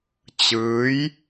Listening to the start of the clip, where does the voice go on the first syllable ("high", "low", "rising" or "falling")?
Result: rising